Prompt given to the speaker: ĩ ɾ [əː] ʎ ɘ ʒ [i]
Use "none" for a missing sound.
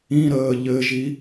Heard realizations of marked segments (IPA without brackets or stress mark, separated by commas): əː, i